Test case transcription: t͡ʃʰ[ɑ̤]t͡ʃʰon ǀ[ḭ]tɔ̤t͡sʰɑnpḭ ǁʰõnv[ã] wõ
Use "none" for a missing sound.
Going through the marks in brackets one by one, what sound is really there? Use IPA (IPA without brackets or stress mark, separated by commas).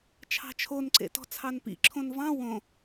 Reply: ɑ̤, ḛ, ɑ̃